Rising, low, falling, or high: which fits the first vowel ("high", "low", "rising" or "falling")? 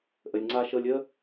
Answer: low